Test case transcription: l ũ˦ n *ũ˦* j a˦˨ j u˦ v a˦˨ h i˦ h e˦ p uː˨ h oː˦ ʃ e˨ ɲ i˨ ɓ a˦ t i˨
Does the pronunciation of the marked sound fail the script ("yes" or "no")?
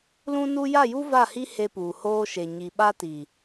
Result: yes